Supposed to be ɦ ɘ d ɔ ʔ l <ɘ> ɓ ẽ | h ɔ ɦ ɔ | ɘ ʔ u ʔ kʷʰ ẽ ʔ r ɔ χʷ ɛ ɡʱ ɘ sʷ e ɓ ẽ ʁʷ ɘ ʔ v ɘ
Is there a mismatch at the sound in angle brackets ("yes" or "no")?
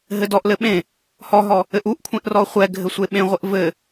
no